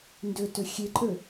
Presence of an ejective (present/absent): present